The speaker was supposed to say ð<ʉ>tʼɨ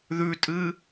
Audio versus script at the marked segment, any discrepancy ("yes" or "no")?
no